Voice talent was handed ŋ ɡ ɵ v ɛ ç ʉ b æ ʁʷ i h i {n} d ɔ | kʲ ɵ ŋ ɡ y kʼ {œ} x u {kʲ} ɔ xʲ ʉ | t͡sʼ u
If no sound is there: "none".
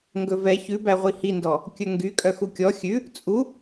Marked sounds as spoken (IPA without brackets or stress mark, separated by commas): n, œ, kʲ